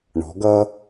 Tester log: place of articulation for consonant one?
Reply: retroflex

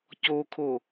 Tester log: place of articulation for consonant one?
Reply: palatal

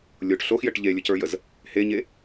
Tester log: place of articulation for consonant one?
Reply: alveolar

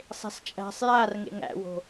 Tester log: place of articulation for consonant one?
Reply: alveolar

